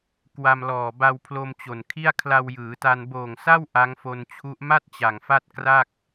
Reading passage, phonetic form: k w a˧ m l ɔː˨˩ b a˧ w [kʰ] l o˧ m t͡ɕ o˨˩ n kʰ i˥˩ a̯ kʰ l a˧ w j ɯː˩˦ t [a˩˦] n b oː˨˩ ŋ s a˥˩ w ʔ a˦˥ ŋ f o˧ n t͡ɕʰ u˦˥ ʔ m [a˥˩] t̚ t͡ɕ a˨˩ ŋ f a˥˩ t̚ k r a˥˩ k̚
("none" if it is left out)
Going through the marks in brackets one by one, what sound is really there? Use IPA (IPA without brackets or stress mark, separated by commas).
pʰ, a˧, a˥˩